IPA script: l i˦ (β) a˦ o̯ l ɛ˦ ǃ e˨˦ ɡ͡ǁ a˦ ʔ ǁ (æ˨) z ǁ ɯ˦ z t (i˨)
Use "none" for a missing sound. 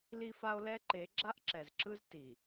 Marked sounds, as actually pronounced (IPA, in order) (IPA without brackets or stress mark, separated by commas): f, ɛ˨, i˨